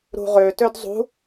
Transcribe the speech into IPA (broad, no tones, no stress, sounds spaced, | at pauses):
ɾ ṳ ʁ ø t ø d zˤ ṳ